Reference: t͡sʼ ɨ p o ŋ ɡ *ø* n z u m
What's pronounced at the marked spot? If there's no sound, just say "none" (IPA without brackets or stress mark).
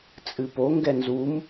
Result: ɛ